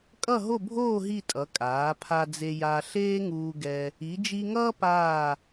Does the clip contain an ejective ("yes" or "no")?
yes